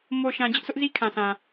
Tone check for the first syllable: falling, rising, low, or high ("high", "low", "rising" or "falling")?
low